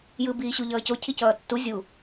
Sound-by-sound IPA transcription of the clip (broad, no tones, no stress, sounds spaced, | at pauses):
j ɯ b iː ɕ u ʎ ʌː c o cʰ i c ʌː tː u zʲ u